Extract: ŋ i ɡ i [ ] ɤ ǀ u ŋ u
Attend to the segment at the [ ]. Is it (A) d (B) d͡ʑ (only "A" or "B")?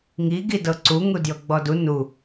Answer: A